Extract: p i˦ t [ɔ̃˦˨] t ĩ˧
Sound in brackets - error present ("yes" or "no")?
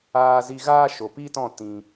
no